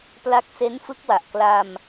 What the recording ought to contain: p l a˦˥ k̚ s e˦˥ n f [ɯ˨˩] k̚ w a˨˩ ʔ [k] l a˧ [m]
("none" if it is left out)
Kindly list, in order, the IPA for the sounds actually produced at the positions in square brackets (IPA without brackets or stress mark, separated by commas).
ɯ˦˥, k, m